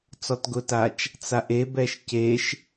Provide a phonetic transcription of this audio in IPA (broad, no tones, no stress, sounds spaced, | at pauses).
t͡s ɔ t ɡ ʊ t a t͡ʃ | t͡s a ʔ e b ɛ ʃ c e ʃ